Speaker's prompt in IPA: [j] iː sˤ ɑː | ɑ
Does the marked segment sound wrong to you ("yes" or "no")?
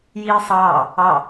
no